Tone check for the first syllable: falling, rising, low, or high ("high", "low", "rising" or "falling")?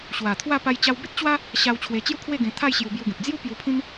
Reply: low